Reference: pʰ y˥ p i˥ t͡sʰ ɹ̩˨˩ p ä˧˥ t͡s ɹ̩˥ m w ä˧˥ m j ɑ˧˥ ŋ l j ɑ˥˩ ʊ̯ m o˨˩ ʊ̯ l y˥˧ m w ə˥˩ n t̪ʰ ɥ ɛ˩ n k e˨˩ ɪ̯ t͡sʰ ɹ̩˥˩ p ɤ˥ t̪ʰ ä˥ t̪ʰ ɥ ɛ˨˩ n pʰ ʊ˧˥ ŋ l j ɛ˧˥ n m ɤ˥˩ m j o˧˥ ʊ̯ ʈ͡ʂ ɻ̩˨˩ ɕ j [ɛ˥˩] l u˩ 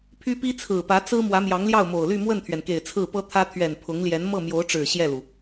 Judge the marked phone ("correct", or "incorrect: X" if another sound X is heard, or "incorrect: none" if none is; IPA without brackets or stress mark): correct